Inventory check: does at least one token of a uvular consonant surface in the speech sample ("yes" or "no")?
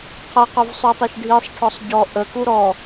yes